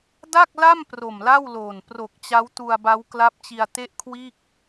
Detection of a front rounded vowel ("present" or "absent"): absent